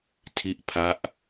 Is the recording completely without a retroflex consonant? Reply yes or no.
yes